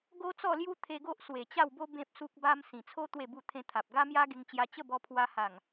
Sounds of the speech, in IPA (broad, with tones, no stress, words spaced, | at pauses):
ɡo˦t͡sɔ˥˧lju˦ t̪ʰe˧ɡo˦ʔ swe˨˩t͡ɕa˥˧wbo˦ bẽ˦p̚su˦k̚ba˦m sĩ˨˩t͡sʰo˦ t̪we˥˧bu˥˧ t̪ʰẽ˧t̪ʰa˨p̚ ɡa˦mja˦ɡe˧ŋt͡ɕja˧ t͡ɕə˥˧bɔ˧pʰwa˧ ha˨˩ŋ